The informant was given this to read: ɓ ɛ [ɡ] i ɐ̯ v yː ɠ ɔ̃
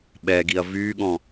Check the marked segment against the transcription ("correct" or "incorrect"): correct